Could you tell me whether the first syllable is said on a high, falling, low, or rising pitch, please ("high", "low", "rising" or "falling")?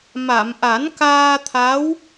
low